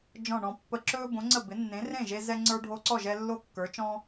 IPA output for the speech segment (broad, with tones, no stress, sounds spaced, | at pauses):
d͡ʒ ɔ̃˥˩ ɳ ɔ̃˧ pː ə˧ ǁ ɵː˥ b õ˩˥ ŋ͡ǀ ə˥˩ b ɪ˩˥ nː ẽ˩˥ r ẽ˥˩ ʒ e˧ z ɛ˧ ŋ͡ǀ ə˞˧ ɖʱ o˧ ǀ ɔ˥˩ ʒ ɛ˧ lː o˥ kː ə˞˩˥ t͡ʃ ɔ̃˥